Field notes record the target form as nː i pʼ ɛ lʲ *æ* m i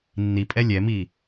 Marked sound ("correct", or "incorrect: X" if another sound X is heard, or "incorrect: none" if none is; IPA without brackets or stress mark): incorrect: ɛ